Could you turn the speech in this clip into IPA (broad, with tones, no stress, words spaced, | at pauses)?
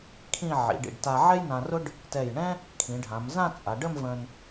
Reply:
kʰĩ˥˧ ʕḭ˩˧ɖḭ˧˩ɖta˧ ʕɛ˥jnã˧rʊ˥ɖ | tɛ˧˩jɳɛ̃˥ | kʰĩ˩˧ɖʱã˩˧mzã˥˧t͡sʼa˩˧ ɖə˥˧mvə̃˧n